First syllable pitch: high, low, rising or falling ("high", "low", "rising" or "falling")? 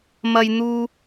high